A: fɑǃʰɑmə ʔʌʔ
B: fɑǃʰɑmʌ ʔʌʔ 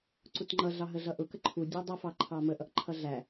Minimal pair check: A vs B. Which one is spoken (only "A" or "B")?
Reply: A